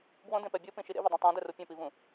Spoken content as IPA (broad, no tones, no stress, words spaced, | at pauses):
bwõdẽpɛ bʲopĩʃi ɾḛvɛdˤĩ tˤõdɛru pʲɛ̃pivũ